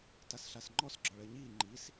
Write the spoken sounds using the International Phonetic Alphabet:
tasɬasŋ͡ǃɔs ɡ͡ǁɔɭəːɲiː ŋ͡ǃis

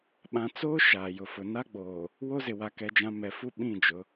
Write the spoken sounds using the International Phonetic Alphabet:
ɓã˨t͡soː˦ ʃaː˨jʊ˨fʊ˨ na˦ɡ͡boː˨ | wo˦zɪ˨ wa˨kɛ˨d͡ʒã˨ mɛ˨fu˦ ɓĩ˦˨d͡ʒʊ˨˦

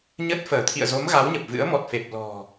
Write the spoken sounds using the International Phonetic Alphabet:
ɲə˦˥t̚fəː˧˩ t̪ʰḭ˧˨ə̯zo˨˦m ɣa˨˦wɲə˨˩p̚vɨ̰˧˥ə̯ mɔ˨˩t̚fe˨˩p̚ lɔ̤˨˩

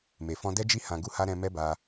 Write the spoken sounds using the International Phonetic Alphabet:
me˨ fɔ̃˧dɛ˦d͡ʒi˦ hã˧ɡu˦ha˦ ɾɛ̃˧ mɛ˦ba˧

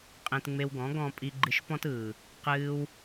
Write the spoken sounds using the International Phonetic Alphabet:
qʼẽ˧tŋ͡me˧wɡɔ̃˨˦ɡɔ̃˧ pʼi˧ɡ͡ǃɨ˧ʃpɔ̃˦tɯː˨ | qɨː˧w

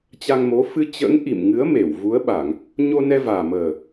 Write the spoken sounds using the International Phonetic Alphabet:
t͡ɕa˧ŋmo˨˦ fɨ˧t͡ɕə̰ː˧˥ŋ ʔḭ˧˨mŋɨ˨˦ə̯ me˧˩wvu˨˦ə̯ɓa˧˩˨ŋ | ɲo˧nɛ˧vaː˨˩məː˨˩

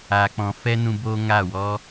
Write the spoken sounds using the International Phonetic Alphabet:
a˧k͡pɔ̃˧ fɛ˦nũ˧ boː˦ŋa˦˨wɔ˦

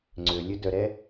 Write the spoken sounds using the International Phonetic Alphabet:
ŋ͡ǀølʲɵ dœɾɛ

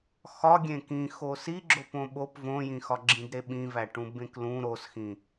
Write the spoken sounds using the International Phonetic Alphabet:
xɒɡʲẽ kĩxo siɡ͡ǁo põɓop võjĩxɒ ɡ͡ǁĩdɾeɓĩvæ ʈũbẽklũ ɾosxĩ

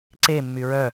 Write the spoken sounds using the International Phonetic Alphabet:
ǀemːy ɹœ

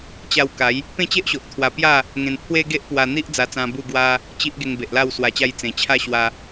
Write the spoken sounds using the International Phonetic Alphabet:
t͡ɕa˧w ka˨˦j | pẽ˥˧t͡ɕe˦ʔɕo˨ʔ t̪ʰwa˧pja˥˧ | ŋẽ˧n pʰwe˦ɡe˦ʔ pwa˧n̪i˦ʔd͡za˧t͡sã˧ bu˥˧ɡwa˦ | t͡ɕi˦ʔ ɡe˧ŋbe˨ʔla˥˧w swa˧t͡ɕa˦j t͡sẽ˨˩t͡ɕʰa˥˧ ɕwa˦

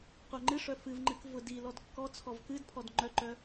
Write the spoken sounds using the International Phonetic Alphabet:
qʷœŋ͡ǃɨʂœ fɨvŋ͡ǃɨk vʊdi lɔdkːɔt͡sʰɔv kɨdpʰɔd ŋ͡ǃœǃœ

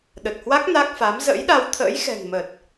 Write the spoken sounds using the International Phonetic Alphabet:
ɗə˨˩t̚hwa˦˥k̚ na˦˥k̚fa˨˦m zə̰˧˥jɗa˧wt̪ʰə̰ː˧˥jxɛ̤˨˩ŋ mə˨˩t̚

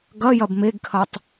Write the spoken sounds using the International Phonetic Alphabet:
ɡɐ jɐbmeɡkʰɐtˤ

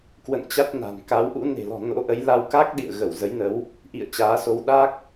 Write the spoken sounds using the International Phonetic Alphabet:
kwə̰˧˨nt͡ɕa˦˥t̚ na̤˨˩n ka˨˦wʔṵ˧˥ ne̤˨˩lɔ̤˨˩ no̰˧˥ʔə˨˦j la˧wka˦˥k̚ ɗḭ˧˨ə̯ɣə˧˩w zə˨˦jnə˨˦w | ʔḭ˧˨ə̯ t͡ɕaː˨˦so˧w ɗa˦˥k̚

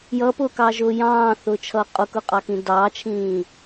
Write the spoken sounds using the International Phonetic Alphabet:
jʌpʊːkɑʒʊː jɑ̃ːθʊːt͡ʃʰʌː qʼʊkʊqʼɑkĩ dɑːt͡ʃʰĩː

